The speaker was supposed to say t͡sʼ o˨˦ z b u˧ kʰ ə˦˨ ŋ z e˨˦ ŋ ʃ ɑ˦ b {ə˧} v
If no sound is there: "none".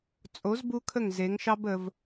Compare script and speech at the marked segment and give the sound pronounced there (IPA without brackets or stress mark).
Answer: ə˧